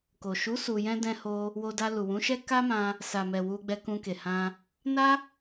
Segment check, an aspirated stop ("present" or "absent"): absent